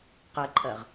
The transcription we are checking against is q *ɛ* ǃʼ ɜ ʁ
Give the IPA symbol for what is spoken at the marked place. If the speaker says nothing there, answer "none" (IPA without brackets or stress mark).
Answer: ɛ